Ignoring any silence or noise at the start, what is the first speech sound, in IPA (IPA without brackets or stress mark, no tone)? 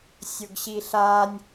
sʲ